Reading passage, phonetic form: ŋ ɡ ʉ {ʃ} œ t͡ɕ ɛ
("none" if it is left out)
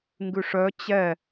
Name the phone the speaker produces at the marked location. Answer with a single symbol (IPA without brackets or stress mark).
ʂ